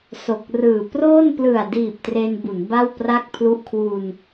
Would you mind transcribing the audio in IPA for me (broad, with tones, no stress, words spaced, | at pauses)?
so˨˩k̚rɯː˨˩proː˥˩n plɯ˨˩a̯diː˨˩p̚ tre˧nbu˩˦n ba˥˩wpra˥˩k̚pʰlu˦˥ʔ kʰwu˧n